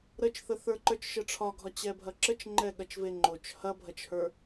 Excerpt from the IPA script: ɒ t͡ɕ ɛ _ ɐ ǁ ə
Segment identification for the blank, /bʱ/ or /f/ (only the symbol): bʱ